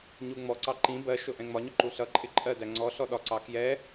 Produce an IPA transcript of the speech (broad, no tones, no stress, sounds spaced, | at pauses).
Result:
ɲ u ŋ͡m ɔ ǀ ɑ ǃ ĩ b ɜ ʃ ʊ ʔ ɛ̃ ŋ͡m ɒ ɲ ɔ ǃ u ɬ ʌ ǃʼ ɪ ǃʼ ɜ d æ ŋ͡ǀ ɔ ɬ ɔ ɗ ɒ ǀ ɑ k j ɛ